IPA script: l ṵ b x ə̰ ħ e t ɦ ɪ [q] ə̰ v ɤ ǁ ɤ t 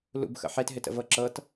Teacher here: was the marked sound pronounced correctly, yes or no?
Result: no